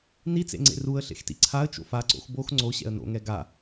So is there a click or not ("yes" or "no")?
yes